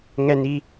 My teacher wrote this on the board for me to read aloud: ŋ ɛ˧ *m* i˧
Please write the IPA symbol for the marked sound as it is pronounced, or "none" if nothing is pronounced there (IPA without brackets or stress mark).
n